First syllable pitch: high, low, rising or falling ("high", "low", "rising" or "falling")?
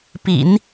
low